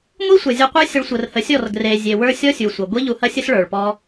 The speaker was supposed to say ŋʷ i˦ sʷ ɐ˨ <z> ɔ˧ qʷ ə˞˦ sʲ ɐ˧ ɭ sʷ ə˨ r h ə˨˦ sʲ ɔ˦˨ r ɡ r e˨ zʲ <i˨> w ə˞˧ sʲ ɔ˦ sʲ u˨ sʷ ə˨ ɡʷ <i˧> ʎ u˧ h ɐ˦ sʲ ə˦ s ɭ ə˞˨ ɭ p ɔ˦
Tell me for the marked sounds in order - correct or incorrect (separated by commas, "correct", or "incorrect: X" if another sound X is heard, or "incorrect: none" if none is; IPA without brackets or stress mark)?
incorrect: zʲ, incorrect: e˨, incorrect: i˦